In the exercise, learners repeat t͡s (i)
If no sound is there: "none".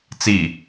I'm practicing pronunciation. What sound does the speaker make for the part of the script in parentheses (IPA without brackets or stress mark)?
i